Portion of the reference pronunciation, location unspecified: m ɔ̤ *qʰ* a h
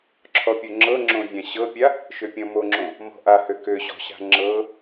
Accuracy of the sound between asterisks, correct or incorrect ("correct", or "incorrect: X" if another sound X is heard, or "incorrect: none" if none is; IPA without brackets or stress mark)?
incorrect: ʔ